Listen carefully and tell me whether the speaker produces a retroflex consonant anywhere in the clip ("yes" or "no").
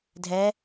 no